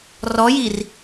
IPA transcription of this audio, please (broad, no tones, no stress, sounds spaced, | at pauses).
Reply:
r ɔ j i r